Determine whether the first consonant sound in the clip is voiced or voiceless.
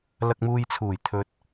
voiced